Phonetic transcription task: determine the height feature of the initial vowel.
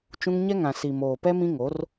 high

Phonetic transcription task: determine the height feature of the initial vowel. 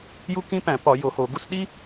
high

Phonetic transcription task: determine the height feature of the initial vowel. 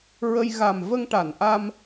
mid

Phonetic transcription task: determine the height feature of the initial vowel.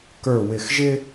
mid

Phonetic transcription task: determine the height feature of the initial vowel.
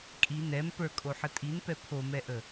high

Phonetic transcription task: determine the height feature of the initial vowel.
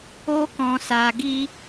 mid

